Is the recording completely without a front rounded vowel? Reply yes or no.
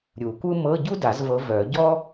no